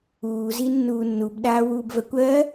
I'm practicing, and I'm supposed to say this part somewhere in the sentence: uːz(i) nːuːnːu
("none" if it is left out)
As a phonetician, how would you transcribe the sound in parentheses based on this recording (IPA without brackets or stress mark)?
i